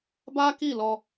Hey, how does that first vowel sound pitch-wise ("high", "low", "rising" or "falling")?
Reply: high